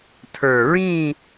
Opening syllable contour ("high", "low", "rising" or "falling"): low